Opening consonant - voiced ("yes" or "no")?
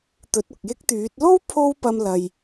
no